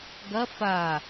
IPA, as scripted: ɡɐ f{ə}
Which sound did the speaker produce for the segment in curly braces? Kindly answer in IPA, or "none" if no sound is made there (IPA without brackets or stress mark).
a